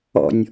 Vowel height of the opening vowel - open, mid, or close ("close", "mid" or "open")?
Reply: mid